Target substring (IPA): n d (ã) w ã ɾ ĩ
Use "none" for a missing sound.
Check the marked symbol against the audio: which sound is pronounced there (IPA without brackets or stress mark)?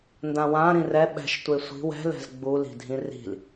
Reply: ã